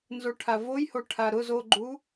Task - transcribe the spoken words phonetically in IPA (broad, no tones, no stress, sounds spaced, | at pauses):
n z o ʈʰ a v o j h o ʈʰ a ɾ ʊ z o ɡ͡ǃ u